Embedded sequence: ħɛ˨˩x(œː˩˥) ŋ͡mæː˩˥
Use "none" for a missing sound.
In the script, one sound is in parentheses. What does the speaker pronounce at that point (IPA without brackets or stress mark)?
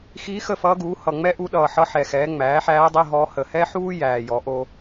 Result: ɛː˩˥